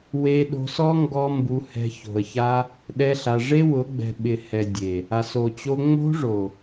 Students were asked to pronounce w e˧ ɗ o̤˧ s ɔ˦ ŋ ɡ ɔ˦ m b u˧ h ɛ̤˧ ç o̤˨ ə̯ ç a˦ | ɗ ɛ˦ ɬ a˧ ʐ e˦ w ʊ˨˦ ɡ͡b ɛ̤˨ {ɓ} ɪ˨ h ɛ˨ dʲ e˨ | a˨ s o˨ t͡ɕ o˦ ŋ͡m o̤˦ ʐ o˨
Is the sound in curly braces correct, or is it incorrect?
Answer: correct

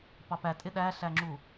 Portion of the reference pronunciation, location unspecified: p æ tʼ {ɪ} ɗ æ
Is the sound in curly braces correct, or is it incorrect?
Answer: correct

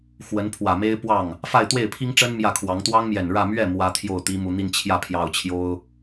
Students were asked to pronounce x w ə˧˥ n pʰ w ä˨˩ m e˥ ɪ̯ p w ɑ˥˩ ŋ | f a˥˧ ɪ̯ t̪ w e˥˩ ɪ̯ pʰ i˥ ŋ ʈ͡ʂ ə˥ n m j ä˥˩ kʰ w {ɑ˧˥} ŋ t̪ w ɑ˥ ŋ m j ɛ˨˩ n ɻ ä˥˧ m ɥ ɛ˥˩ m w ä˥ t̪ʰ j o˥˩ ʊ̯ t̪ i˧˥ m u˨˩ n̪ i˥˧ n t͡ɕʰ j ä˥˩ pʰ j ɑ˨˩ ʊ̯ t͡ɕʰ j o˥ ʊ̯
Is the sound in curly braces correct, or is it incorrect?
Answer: correct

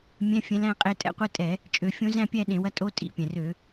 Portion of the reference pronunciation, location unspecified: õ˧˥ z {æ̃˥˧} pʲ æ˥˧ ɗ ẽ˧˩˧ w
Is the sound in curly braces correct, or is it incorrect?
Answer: correct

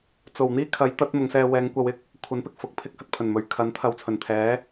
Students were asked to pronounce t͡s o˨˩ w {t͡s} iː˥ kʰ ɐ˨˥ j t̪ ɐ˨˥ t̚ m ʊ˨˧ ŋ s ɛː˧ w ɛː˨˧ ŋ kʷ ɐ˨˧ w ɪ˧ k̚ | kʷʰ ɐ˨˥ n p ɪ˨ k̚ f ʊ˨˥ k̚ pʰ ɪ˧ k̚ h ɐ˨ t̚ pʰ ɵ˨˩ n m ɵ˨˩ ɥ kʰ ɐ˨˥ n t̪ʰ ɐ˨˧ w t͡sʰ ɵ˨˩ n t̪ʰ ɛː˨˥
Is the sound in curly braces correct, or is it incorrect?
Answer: incorrect: n̪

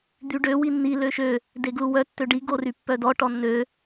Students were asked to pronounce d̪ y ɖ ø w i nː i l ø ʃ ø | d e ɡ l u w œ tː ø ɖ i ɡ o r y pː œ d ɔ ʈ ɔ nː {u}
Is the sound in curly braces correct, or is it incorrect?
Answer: incorrect: ø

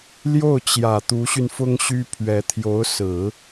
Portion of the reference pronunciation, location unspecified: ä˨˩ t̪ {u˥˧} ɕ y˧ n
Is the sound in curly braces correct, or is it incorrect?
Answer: incorrect: u˧˥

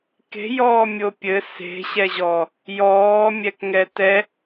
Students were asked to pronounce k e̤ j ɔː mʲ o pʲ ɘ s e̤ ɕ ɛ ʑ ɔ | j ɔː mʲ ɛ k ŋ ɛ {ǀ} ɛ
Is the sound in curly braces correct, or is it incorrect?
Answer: incorrect: t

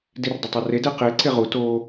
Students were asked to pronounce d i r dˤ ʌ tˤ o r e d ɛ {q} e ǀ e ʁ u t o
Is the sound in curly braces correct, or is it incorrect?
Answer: correct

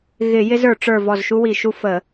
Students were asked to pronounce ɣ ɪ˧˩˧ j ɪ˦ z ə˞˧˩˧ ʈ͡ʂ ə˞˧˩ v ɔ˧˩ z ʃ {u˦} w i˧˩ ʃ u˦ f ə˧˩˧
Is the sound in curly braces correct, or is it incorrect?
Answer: correct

